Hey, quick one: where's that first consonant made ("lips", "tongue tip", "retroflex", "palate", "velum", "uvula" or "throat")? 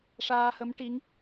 retroflex